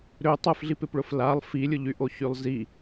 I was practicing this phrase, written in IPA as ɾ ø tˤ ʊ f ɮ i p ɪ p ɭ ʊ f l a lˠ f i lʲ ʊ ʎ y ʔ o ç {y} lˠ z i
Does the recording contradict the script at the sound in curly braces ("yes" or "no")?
no